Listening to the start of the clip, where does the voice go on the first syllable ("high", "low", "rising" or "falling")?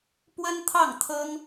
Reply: high